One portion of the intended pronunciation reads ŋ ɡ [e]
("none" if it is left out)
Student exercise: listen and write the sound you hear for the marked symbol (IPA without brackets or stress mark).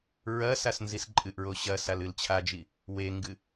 ɨ